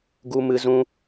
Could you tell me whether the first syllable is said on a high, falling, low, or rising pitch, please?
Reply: high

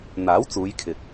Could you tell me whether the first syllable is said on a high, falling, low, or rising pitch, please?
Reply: rising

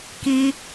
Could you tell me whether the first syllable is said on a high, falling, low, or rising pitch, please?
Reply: low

